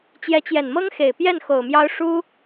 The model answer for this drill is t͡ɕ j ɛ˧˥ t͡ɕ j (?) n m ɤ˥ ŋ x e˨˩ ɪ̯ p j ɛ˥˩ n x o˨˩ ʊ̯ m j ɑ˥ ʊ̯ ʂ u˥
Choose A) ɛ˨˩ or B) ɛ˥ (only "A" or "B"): A